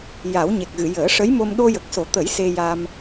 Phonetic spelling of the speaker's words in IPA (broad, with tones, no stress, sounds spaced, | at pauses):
j a˨˩˦ w ɲ e˨˩ k̚ ɣ ɨ˨˩˨ j əː˨˩˦ ʂ ə˧˥ j m o˧ m ɗ o˧ j ə˨˩ k̚ s o˨˩˦ t̪ ə˨˩˦ j s e˧ j a˧ m